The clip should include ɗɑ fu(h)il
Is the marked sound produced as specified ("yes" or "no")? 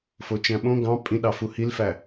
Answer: yes